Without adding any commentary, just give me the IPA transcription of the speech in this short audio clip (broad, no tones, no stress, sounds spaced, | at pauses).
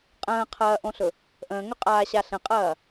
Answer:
qʼ ə̃ː qʰ ɐː ʔ õ ɬ ɵ | ʔ ə̃ː ŋ ɵ qʼ aː ɕ a ɬ ə̃ qʼ ɐː